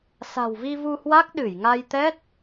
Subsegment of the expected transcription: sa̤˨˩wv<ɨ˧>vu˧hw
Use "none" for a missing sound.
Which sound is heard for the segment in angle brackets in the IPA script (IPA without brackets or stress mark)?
i˧